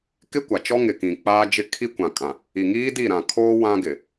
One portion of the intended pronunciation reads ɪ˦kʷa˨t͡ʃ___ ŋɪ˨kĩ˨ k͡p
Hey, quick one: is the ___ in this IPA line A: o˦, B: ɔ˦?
B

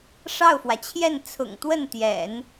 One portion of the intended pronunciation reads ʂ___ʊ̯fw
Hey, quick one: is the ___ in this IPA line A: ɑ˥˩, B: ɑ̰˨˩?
A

